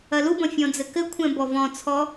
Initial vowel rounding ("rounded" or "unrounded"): unrounded